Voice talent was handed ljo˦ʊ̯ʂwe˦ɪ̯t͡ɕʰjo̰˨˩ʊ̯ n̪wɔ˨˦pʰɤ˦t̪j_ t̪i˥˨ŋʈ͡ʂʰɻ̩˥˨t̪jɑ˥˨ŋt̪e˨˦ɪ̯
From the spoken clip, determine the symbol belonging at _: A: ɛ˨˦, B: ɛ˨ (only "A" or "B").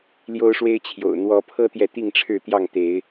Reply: B